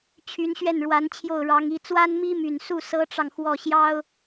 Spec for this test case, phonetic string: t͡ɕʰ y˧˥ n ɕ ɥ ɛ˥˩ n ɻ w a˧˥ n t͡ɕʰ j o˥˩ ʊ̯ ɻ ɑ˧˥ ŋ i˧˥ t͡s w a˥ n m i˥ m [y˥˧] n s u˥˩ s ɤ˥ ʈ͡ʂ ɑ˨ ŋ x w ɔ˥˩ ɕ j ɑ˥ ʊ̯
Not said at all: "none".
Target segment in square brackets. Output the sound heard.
y˨˩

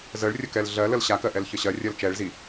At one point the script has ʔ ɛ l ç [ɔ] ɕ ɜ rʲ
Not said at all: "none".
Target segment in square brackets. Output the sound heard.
ə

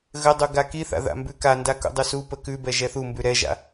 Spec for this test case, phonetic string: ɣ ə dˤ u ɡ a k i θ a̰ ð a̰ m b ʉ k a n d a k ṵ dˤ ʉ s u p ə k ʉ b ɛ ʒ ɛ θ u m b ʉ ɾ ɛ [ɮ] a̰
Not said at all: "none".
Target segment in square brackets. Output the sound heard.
ʒ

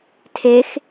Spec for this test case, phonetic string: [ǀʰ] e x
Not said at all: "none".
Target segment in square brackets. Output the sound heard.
tʰ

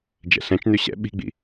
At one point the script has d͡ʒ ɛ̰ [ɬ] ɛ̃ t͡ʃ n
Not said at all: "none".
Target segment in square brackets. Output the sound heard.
ɬ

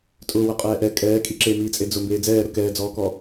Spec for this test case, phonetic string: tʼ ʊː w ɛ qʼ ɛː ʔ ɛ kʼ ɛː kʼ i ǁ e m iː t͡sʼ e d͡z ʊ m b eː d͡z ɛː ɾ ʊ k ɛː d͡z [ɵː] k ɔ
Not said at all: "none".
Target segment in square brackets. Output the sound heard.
ɔː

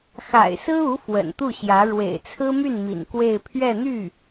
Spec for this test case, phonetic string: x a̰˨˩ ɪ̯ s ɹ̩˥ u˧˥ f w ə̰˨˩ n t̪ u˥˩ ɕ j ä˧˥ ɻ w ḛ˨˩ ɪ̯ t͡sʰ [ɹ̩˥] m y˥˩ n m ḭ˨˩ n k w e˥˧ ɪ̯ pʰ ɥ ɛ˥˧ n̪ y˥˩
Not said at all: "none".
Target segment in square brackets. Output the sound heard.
ɹ̩˥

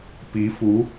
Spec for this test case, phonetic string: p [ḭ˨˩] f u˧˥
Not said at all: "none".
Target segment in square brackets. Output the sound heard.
i˧˥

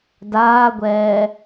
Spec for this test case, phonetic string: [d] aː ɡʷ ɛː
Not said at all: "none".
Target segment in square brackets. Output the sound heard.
d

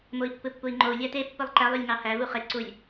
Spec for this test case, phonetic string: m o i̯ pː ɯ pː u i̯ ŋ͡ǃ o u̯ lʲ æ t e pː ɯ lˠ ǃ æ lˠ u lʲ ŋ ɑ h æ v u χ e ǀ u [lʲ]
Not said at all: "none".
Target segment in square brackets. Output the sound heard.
lʲ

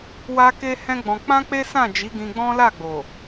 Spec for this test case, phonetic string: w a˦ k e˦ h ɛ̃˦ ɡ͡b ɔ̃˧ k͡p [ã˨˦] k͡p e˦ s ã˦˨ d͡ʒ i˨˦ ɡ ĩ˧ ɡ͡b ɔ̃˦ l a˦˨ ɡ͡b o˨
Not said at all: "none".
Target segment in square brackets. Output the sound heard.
ã˦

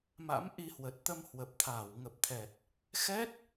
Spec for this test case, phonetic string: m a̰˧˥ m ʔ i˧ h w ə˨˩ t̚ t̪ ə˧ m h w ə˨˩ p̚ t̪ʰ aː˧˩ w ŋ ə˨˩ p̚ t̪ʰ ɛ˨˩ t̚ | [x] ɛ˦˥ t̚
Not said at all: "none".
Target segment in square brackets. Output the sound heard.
x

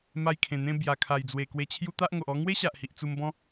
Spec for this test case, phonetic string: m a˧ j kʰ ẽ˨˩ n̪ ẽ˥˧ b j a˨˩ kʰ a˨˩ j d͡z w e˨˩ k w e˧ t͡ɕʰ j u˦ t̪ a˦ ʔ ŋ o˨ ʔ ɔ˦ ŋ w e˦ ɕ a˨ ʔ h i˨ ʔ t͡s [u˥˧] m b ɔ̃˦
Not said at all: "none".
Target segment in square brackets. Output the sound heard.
u˧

